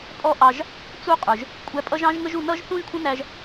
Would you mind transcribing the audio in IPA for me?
pʼ ɔ˦ ʔ ɑ˧ ʒ | t͡s u˦ qʼ ə˞˧ ʒ | kʷʼ æ˧ pʼ ʌ˦ ʒ ɑ̃˦ ʒ ŋ ə˦ ʒ u˧ n ʌ˦ ʒ θ ũ˦ ʒ kʷʰ ə̃˦ n æ˦ ʒ

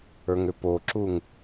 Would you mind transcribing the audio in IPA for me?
ə˞ ŋ ʏ p o ǁ u ŋ

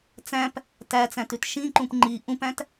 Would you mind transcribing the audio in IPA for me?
t͡s æ̃ p | t æ t͡s æ̃ t ʉ t ʃ ĩ ǃ ũ p ŋ͡ǃ i ʔ ũ p æ̃ t

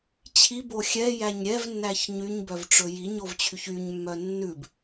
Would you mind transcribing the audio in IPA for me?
t͡ɕʰ i b o xʲ ɛ j æ ɲ ɾʲ ɛ v nː æ ç ɲ y ɲ b œ v ʈ͡ʂ ɵ j i ɲ o v t͡ɕʰ y ç y ɲ mː œ nː ʉ b

